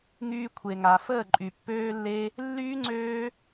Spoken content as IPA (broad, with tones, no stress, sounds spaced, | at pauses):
ŋ yː˧ kʷʰ e˨ ŋ a˨ f əː˦˨ ǃʼ y˨ pː øː˦ lː e˦ | lː yː˦ ŋ͡ǀ øː˦